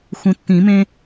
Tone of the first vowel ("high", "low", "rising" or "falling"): low